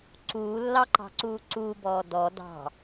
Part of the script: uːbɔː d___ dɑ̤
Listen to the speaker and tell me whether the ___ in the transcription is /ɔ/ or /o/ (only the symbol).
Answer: ɔ